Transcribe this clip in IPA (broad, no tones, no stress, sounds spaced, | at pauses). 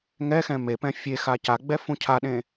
ŋ ɛ x ɛ̃ m e p ɛ̃ fʲ e x a c a ɡ͡b ɛ f ũ cʰ a ɗ ẽ